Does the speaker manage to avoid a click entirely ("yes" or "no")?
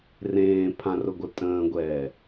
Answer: yes